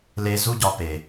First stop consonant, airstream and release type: plain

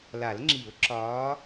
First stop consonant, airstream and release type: click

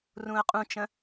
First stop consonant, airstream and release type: ejective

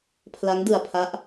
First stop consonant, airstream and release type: aspirated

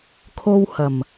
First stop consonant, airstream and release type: aspirated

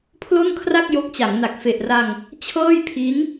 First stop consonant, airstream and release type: aspirated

